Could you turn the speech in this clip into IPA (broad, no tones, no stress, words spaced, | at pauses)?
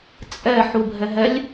t͡sʼɛ ħubʱɛɦɛlʲ